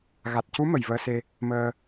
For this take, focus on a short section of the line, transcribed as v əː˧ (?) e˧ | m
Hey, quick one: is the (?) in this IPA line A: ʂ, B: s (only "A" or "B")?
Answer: B